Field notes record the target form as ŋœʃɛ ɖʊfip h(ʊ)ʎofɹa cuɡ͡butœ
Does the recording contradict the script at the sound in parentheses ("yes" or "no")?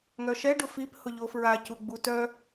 no